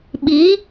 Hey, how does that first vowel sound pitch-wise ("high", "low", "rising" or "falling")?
rising